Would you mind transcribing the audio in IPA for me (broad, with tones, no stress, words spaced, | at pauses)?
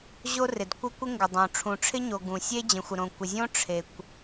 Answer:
ʑo˥rɪ˩dkʷɪ˥ kʷɪ˥ŋɡɪ˩dˤõ˩ ʈ͡ʂʰũ˩ʈ͡ʂʰɪ˥ɲo˩ ɡũ˩sʲe˥ d͡ʑə̃˩xʷə˩ɾõ˩ kʷɪ˩zʲõ˥ ʈ͡ʂʰe˩kʷ